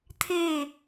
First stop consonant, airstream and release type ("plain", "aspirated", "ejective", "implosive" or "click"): aspirated